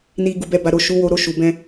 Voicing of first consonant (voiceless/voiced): voiced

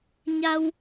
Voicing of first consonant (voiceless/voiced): voiced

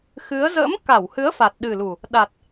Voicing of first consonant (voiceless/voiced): voiceless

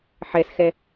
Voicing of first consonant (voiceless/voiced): voiceless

